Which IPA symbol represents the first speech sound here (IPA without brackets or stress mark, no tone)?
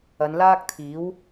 ɐ